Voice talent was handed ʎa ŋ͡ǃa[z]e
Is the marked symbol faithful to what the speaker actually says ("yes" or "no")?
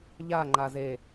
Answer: yes